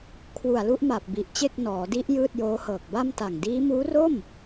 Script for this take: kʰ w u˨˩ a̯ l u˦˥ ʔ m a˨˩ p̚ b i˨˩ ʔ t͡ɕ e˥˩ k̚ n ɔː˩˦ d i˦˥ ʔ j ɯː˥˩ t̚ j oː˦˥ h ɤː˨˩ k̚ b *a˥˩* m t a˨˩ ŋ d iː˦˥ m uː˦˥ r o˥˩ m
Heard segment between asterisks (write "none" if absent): a˥˩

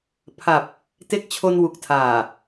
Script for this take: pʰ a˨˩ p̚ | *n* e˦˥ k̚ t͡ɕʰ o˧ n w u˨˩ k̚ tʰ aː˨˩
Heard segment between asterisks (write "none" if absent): t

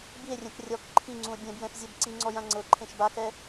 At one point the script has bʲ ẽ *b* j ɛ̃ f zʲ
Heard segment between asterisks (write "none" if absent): b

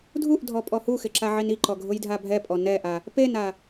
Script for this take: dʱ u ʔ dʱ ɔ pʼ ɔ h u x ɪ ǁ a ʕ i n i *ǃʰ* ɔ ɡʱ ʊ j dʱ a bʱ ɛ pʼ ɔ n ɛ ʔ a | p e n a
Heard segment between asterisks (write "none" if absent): ǃ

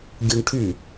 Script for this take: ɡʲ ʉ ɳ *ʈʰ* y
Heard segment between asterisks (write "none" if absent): ʈʰ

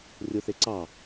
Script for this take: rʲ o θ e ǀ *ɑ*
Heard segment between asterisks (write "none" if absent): ɑ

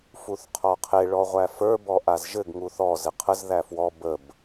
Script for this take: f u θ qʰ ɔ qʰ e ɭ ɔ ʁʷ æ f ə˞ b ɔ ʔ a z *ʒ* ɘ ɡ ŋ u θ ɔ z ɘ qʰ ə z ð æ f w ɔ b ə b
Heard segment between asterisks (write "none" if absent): ʒ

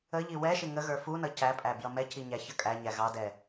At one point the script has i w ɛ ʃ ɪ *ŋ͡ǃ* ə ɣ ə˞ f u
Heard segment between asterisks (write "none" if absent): ŋ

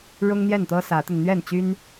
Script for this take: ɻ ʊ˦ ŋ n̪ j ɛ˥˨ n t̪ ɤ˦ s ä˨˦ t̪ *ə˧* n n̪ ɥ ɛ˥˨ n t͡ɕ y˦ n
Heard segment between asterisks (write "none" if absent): ə˧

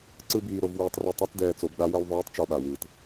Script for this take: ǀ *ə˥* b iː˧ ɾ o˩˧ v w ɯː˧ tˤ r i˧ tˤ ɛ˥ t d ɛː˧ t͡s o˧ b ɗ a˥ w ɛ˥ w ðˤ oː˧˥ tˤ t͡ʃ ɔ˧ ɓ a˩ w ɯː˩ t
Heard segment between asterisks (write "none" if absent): ɯ˥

